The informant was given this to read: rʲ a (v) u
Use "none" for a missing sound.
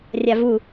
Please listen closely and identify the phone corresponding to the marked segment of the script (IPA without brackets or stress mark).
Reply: v